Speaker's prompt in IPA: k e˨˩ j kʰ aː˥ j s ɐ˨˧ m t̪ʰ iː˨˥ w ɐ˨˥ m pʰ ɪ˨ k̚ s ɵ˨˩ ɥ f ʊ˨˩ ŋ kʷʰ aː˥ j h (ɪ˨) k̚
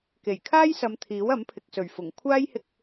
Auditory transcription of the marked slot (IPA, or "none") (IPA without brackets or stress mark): ɪ˧